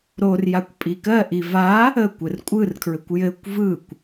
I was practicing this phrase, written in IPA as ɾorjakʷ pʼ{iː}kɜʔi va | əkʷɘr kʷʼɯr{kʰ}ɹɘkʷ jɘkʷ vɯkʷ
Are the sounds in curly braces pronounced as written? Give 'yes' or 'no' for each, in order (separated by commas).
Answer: no, yes